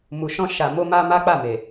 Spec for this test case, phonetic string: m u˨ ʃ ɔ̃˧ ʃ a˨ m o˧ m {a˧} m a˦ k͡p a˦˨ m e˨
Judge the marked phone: correct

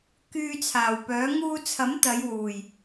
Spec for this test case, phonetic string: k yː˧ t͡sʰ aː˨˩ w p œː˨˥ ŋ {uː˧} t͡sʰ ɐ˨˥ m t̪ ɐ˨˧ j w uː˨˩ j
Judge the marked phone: correct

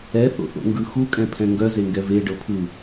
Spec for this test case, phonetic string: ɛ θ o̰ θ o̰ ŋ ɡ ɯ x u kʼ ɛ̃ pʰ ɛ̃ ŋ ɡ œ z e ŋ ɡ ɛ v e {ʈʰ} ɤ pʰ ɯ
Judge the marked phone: incorrect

